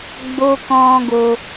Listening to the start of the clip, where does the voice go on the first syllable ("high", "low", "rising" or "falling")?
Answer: low